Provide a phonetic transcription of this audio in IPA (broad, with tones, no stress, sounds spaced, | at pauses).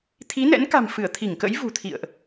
t̪ʰ i˨˦ n ɛ̰˧˥ n k a̤˨˩ m f ɨ˧˩ ə̯ t̪ʰ i˧˩ ŋ k ə̰˧˥ j v ṳ˨˩ t̪ʰ ḭ˧˨ ə̯ ʔ